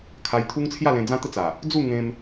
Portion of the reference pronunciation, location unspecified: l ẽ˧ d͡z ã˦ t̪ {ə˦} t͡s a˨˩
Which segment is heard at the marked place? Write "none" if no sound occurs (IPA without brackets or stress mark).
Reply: ə˦